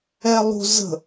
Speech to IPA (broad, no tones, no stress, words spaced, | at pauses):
ɛlˠṳ zə̤